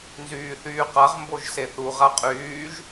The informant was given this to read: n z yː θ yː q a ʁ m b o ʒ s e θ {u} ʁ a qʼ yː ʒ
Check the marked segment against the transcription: correct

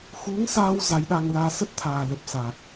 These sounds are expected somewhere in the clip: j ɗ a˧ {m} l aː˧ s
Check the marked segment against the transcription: incorrect: ŋ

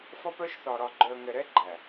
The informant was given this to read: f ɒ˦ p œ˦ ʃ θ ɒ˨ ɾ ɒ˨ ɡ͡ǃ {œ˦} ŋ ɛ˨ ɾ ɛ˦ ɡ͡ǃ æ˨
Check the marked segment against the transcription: incorrect: œ˨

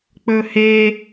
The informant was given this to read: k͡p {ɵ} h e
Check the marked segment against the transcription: correct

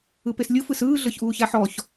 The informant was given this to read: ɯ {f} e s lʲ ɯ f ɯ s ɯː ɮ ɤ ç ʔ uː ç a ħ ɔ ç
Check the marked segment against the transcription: incorrect: p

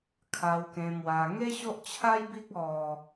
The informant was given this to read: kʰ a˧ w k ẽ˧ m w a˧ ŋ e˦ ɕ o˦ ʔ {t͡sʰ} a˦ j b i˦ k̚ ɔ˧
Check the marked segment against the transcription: incorrect: t͡ɕʰ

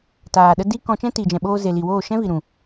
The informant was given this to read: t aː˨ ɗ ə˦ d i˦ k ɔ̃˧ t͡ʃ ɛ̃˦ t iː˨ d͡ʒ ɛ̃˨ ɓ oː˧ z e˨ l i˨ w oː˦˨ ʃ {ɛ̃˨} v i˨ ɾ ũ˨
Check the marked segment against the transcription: incorrect: ɛ̃˦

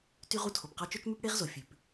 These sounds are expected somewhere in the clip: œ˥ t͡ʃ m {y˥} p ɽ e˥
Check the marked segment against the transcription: correct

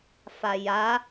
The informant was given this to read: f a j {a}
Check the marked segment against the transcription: correct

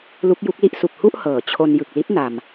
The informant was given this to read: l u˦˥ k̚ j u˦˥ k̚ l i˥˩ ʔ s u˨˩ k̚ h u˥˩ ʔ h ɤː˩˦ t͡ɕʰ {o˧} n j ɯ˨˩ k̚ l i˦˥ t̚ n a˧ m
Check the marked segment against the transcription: correct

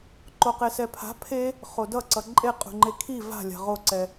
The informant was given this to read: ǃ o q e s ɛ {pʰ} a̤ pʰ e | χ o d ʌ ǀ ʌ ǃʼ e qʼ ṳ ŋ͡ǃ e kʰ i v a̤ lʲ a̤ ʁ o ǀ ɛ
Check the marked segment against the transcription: correct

